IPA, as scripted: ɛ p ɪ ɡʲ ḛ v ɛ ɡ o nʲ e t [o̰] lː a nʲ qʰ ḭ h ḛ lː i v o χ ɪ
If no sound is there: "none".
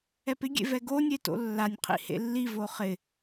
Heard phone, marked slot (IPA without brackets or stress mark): o̰